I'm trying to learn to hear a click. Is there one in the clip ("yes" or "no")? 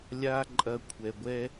yes